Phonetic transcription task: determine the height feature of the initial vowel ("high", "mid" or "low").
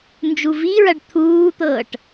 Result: high